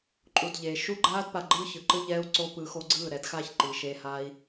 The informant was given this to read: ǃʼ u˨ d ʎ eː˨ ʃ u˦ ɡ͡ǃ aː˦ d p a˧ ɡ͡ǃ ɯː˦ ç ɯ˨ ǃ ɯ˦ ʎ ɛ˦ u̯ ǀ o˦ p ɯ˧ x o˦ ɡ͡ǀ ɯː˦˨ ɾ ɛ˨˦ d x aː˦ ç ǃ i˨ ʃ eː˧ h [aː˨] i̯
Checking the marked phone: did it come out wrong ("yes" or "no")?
yes